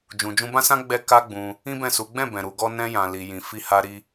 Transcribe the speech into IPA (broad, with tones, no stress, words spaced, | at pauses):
d͡ʒũ˨d͡ʒũ˧bã˦sã˦ ɡ͡bɛ˦ka˦ɡ͡bũ˧ | ĩ˦bɛ̃˦˨su˨˦ ɡ͡bɛ̃˦˨bɛ̃˨ ɾu˨˦ɡɔ˦ nɛ̃˧jã˨li˨ jĩ˨fi˧ha˧ ɾi˧